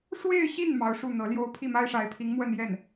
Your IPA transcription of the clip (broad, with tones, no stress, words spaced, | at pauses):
ʂwe˥˧ɪ̯ɕi˥˩n mɑ˧˥ʊ̯ʂu˥˩n̪ɤ˧˥ljo˥ʊ̯ pʰi˥˩ma˥ɪ̯ʂa˧˥ɪ̯pʰi˧˥ŋ mwə˥˧njɛ˥˩n